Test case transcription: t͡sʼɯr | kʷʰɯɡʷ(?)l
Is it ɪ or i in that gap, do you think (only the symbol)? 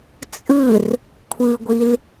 i